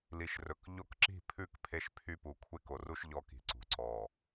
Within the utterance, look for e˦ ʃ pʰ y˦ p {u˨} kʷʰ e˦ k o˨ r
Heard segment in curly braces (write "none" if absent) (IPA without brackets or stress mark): u˨